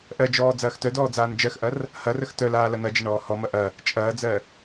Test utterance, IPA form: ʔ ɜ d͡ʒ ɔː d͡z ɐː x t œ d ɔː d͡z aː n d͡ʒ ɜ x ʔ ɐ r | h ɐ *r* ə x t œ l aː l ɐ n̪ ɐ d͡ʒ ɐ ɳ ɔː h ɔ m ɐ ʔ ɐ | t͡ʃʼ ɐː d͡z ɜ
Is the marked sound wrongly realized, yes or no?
no